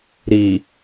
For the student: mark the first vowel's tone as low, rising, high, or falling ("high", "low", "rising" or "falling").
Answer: low